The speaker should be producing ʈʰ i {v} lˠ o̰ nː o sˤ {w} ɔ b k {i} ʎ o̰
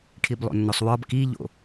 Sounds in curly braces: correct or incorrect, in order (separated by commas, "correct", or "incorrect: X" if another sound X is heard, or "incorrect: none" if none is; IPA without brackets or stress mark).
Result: incorrect: b, correct, correct